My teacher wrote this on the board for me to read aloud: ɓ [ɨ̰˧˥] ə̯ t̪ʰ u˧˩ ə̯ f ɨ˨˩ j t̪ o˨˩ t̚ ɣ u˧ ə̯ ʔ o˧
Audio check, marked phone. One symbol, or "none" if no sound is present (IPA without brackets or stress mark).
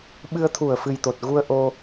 ɨ˧